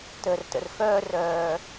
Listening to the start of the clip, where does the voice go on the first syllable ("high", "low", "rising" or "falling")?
low